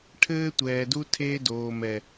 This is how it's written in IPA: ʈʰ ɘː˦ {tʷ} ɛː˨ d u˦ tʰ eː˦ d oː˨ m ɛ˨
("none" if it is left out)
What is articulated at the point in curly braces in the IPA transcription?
tʷ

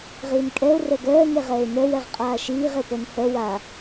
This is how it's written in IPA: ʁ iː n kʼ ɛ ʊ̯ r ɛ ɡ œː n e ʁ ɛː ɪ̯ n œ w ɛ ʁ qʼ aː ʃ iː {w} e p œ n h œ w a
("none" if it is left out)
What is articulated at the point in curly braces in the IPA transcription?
ʁ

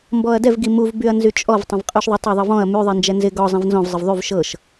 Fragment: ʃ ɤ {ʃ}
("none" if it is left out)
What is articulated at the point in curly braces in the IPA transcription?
ʃ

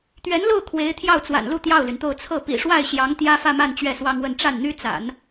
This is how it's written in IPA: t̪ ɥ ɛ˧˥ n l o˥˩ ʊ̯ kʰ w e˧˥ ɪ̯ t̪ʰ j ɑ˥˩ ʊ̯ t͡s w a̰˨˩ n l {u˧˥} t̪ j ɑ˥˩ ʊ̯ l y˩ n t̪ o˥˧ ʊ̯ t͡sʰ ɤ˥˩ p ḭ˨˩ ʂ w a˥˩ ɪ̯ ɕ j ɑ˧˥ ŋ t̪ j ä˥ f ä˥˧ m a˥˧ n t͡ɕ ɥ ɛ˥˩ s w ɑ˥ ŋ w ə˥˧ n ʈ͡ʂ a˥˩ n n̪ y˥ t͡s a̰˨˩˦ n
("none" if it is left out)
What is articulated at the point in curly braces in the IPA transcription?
u˥˧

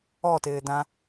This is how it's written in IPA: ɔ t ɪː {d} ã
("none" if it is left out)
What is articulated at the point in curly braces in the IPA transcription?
d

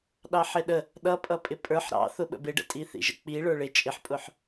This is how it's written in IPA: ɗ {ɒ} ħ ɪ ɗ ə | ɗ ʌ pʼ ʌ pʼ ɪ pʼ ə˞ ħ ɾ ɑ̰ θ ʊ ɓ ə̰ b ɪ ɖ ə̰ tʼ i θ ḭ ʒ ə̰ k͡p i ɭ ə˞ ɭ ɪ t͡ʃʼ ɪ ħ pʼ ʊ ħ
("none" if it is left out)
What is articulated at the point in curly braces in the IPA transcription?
ɑ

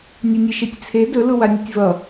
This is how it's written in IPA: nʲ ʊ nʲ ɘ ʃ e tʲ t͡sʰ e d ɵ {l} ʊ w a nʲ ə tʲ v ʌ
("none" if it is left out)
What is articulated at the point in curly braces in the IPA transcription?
l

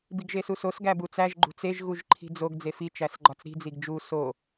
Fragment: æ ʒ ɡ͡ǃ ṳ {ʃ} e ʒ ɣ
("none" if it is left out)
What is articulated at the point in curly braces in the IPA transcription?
t͡s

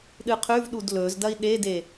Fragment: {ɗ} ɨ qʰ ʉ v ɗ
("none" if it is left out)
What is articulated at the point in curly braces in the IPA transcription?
ɗ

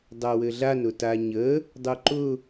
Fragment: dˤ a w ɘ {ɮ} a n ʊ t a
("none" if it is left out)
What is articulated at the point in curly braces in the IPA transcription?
ɮ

